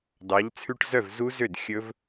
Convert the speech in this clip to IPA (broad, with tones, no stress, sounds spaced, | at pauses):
d ɑ˩˧ ʎ t͡sʰ ʉ˧ ʈ z œ˥˩ v z u˦˥ z ø˥˩ d xʲ ɵ˦˥ v